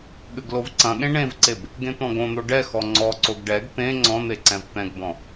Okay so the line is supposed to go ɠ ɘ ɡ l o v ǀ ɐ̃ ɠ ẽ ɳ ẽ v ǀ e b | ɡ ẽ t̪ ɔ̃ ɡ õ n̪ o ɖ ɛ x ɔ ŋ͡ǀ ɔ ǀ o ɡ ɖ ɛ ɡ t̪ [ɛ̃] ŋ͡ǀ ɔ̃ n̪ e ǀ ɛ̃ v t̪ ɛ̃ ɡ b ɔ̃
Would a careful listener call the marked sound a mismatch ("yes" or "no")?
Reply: yes